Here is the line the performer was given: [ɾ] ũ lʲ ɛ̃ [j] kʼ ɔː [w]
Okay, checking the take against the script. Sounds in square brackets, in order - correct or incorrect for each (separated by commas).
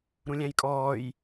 correct, correct, incorrect